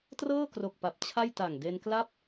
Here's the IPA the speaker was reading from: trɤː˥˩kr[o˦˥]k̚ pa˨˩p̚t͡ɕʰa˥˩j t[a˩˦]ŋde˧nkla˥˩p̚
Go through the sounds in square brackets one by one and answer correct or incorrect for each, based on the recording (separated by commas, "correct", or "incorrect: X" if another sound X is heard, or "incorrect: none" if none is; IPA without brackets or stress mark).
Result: incorrect: o˨˩, incorrect: a˨˩